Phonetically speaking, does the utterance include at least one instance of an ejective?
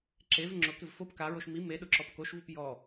no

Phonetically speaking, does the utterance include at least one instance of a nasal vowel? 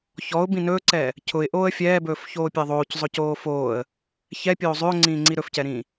yes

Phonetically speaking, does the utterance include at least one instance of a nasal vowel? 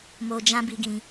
yes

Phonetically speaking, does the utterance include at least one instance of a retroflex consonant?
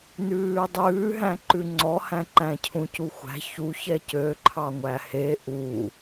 no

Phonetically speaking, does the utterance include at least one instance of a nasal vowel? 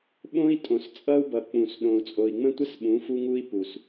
yes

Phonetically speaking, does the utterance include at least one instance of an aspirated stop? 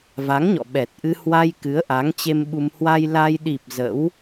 no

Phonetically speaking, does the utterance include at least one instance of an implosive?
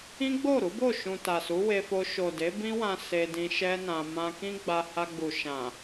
no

